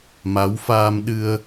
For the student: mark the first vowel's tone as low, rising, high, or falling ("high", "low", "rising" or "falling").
rising